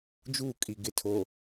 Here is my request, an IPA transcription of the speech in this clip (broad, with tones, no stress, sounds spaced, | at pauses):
d͡ʒ uː˦˨ kʼ i˨ ɡ ɪ˨ tʰ o˨